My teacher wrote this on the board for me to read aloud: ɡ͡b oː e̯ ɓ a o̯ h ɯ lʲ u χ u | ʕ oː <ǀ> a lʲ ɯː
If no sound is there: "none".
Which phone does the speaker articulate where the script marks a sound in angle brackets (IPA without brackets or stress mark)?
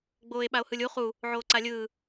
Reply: ǀ